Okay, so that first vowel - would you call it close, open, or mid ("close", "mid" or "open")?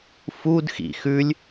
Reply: close